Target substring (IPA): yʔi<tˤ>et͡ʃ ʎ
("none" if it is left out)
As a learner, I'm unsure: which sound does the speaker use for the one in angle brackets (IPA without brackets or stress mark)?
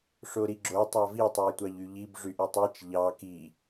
tˤ